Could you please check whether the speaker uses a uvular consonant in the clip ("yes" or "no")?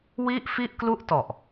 no